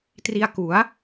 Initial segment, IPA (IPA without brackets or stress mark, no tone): t